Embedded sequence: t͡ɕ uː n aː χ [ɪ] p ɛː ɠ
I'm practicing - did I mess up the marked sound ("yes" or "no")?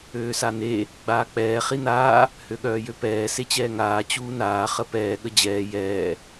yes